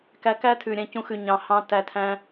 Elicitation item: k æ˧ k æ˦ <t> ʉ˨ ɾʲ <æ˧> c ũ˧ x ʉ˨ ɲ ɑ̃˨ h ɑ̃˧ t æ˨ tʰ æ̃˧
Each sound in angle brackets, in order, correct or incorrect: incorrect: tʰ, incorrect: æ̃˧

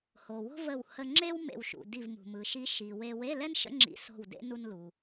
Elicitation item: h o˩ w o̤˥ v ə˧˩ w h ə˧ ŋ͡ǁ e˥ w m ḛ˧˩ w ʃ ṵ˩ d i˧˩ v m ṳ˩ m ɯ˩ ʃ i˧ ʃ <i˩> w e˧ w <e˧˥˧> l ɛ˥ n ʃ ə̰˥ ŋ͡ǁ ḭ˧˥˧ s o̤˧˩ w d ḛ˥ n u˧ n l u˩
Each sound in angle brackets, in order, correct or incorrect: correct, correct

